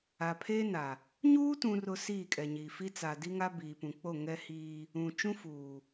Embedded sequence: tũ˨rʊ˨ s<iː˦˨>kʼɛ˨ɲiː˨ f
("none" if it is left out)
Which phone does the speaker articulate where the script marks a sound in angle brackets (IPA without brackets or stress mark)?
iː˦˨